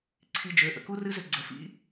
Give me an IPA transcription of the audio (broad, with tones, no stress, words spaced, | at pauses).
ǀʰi˧d͡ʒø˩˧˩ ʔə̰˩˧ku˦˥rɨ˦˥ zʏ˧ɡ͡ǀə˩˧˩ fḭ˦˥